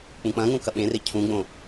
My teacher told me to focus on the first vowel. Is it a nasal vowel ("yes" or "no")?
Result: yes